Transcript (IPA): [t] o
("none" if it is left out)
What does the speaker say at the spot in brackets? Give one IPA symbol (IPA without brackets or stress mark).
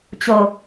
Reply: t͡ɕ